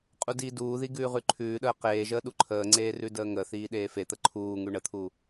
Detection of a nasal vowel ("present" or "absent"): absent